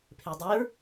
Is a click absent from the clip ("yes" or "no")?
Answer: yes